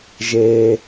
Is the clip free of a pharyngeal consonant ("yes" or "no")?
yes